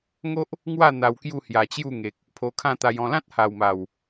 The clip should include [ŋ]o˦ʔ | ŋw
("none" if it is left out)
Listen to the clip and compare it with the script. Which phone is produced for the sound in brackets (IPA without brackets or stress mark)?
ŋ